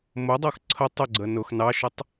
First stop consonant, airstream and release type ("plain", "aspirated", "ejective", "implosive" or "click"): plain